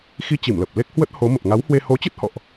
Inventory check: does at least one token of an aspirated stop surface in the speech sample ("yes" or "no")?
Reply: no